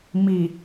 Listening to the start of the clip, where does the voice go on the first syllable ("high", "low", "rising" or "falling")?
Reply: low